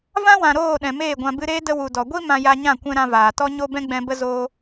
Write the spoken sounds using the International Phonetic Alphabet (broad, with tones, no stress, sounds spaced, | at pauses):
v ã˦ w ã˨ ɾ oː˦˨ ɗ ɛ̃˨ m eː˦˨ ɡʷ ã˧ b ɨ˧ ɾ eː˦ d ə˧ w u˨ d ɔ˨ ɡʷ i˦ m ã˧ j a˧ ɲ ã˦˨ kʷ ɛ̃˦ ɾ ã˧ v aː˨ t ɔ˦ ɲ o˦ b ɛ̃˦ ɡ͡b ɛ̃˧ b ə˦ z oː˦